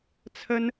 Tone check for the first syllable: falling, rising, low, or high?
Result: high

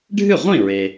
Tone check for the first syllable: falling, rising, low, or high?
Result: falling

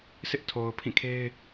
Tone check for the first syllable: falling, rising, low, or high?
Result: high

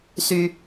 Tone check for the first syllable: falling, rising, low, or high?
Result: high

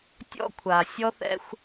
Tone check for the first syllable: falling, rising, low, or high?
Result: high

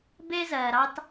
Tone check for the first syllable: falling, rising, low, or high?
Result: high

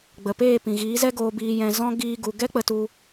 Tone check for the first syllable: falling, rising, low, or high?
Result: low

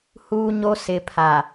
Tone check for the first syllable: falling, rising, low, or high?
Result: high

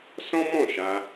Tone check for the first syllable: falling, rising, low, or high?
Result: high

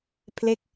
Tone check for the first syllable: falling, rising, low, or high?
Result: falling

